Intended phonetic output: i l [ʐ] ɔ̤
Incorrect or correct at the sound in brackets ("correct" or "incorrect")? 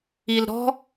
incorrect